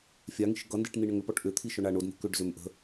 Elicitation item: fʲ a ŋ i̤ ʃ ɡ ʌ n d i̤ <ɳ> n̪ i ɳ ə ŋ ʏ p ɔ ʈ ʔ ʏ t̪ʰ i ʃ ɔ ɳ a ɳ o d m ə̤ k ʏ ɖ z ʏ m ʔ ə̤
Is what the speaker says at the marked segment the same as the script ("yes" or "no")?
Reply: no